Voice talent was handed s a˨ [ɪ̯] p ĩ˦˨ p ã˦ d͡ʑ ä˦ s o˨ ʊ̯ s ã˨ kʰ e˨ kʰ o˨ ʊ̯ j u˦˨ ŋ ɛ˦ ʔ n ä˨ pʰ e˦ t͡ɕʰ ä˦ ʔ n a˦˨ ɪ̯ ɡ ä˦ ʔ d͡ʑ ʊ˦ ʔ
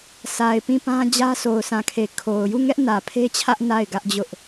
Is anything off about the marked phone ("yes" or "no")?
no